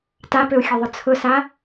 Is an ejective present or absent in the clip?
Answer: absent